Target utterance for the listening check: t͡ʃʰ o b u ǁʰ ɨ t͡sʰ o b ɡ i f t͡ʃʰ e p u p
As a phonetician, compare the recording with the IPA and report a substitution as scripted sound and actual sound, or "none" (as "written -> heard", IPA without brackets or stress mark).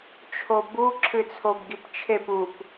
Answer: f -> p